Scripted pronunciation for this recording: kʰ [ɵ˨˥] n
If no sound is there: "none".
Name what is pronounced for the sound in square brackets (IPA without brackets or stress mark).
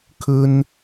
ɵ˥